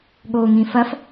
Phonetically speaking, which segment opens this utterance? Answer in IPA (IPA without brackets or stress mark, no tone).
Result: ɠ